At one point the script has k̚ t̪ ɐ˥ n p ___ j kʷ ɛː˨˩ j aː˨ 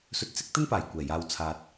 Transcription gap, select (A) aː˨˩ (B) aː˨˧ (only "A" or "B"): A